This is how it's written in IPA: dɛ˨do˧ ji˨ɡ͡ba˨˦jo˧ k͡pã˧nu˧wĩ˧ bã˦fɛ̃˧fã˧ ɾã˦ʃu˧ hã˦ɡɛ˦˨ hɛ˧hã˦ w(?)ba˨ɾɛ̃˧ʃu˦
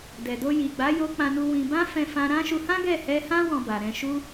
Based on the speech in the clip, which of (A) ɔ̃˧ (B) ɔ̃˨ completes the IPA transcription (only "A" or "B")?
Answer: A